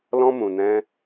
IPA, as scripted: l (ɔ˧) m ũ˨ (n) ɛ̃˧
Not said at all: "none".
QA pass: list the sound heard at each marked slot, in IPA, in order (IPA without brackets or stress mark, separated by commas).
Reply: ɔ̃˧, n